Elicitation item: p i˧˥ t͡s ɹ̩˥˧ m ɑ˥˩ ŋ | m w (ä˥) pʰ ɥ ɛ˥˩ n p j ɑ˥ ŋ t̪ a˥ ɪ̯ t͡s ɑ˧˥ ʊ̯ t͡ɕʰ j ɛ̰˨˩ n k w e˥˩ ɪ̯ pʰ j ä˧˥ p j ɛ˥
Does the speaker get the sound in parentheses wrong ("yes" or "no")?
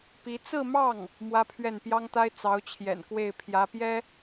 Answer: no